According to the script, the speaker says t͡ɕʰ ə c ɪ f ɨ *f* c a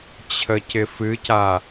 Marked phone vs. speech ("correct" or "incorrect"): incorrect